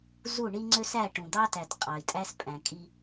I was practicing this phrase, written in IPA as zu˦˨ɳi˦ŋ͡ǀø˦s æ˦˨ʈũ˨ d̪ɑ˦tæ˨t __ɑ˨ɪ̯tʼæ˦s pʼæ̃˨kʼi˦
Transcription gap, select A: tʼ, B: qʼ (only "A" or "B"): B